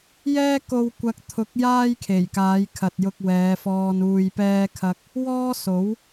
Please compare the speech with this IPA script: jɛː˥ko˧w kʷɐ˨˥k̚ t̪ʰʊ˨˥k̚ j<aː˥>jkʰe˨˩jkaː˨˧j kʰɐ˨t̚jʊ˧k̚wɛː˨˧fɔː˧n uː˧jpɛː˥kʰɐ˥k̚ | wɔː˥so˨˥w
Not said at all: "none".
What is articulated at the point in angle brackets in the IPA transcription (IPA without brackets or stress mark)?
aː˥